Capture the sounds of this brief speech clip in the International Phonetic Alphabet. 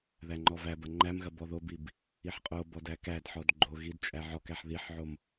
ðæŋ͡ǃɔvæbɐ ŋ͡ǃæmɣɐ bɔðobib | iħqʼobɔd ækædħɔd ɡ͡ǃoɣid t͡ʃʼæʕɔkæħ ðiħʕom

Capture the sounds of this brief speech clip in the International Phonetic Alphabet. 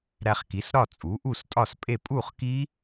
ɾæ˧χ ki˩˥s ɾɒ˥˨ t͡sʼu˩˥ʔu˥˨stʼɒ˥˨spʼe˥˨ pʼu˥˨χki˦˥

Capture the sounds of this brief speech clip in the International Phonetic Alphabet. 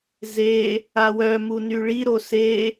ze | awœmu nyɭiɾo se

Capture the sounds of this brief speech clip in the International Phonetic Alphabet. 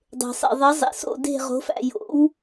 dˤe̤˨sˤḛ˨ðˤɪ˨˦ zˤḛ˨so̰˦˨ de̤˦˨ ʁo̤˨˦fæ̰˦˨ jo̰˨˦w

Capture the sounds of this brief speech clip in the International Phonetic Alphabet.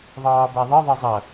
ðˤɑːbaðˤɐ ðˤɐzˤɐ

